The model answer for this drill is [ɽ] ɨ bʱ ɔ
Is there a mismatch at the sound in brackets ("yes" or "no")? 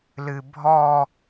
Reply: yes